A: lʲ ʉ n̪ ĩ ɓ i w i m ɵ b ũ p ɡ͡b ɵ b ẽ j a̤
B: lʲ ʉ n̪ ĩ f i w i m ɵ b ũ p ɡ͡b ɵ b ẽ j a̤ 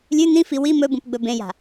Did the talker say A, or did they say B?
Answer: B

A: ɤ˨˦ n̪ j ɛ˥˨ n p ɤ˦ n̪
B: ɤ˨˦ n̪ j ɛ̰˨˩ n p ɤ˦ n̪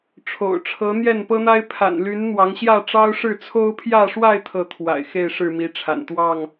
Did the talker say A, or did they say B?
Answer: A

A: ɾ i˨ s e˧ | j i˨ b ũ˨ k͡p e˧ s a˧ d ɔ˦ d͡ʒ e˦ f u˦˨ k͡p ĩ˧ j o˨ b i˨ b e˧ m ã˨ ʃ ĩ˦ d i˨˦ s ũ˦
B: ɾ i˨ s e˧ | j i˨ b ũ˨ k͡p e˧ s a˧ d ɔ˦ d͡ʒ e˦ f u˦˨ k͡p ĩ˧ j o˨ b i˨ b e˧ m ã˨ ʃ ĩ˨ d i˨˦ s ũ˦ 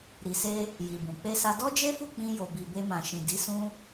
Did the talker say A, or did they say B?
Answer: B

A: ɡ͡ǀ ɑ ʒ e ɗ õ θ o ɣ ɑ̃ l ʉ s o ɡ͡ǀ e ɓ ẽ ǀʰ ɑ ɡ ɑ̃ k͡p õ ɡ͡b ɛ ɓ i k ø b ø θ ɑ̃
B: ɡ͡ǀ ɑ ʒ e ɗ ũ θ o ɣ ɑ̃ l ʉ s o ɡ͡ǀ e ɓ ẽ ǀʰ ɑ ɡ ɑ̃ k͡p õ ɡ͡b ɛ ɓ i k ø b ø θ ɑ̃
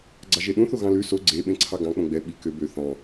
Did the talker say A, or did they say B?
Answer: B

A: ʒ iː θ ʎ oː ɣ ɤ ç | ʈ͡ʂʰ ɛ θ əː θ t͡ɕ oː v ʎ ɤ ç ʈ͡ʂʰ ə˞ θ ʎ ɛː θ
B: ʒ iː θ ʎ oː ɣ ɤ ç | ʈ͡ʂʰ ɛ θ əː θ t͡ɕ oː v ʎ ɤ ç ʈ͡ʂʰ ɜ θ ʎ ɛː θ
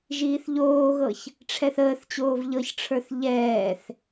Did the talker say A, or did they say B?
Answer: A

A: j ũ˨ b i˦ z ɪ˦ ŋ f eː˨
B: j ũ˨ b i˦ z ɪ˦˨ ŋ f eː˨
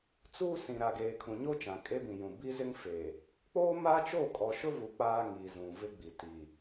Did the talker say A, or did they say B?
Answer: A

